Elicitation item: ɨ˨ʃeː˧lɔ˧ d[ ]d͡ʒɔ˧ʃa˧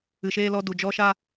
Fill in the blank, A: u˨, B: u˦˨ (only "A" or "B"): A